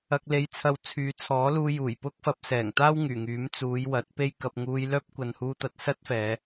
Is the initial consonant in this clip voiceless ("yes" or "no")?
yes